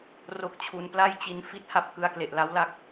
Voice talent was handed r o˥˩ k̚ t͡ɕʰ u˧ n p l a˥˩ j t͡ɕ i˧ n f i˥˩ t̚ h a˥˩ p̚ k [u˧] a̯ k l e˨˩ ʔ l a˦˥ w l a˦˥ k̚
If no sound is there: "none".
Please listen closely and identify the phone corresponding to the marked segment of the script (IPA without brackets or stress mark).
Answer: ɯ˧